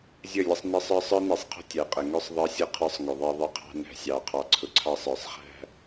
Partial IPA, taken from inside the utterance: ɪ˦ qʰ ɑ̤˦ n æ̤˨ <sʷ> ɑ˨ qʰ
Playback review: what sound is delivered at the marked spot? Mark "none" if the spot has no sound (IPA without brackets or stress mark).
sʲ